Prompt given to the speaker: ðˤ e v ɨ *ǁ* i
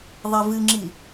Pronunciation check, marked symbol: incorrect: ŋ͡ǁ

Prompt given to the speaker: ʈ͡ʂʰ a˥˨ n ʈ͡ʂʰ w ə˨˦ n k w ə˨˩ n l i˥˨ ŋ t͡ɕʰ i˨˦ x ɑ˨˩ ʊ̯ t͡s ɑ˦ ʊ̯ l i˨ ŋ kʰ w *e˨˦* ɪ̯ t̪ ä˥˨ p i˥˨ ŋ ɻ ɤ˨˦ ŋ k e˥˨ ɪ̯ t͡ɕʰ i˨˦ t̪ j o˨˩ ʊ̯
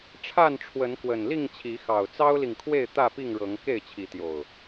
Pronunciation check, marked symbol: incorrect: e˥˨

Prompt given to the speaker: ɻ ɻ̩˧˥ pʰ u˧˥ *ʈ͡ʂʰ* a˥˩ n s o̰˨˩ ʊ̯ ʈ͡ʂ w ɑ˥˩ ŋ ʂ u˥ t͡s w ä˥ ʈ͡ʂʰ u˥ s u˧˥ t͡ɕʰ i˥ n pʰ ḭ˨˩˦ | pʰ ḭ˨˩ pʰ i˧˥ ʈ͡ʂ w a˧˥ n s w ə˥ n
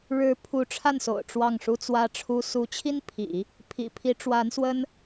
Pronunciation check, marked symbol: correct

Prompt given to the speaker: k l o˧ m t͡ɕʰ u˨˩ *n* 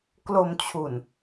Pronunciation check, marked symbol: correct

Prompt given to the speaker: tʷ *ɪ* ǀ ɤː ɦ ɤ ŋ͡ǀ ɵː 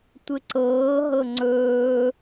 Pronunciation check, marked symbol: correct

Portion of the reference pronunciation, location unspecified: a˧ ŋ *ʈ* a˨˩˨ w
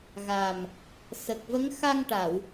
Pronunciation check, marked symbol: correct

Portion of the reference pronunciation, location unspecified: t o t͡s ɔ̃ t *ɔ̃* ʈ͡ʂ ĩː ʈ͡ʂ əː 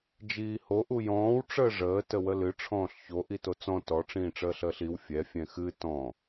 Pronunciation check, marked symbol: incorrect: ɔ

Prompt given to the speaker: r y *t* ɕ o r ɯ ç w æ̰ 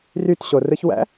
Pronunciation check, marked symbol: correct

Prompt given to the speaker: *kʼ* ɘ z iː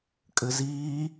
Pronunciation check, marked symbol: correct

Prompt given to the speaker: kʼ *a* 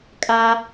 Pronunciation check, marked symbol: correct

